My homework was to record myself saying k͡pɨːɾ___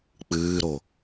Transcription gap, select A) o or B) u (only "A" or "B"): A